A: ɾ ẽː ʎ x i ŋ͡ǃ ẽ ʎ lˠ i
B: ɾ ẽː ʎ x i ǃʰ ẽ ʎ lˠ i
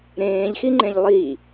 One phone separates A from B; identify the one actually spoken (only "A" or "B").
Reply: A